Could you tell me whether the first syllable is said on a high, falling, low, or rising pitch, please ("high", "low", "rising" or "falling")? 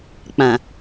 low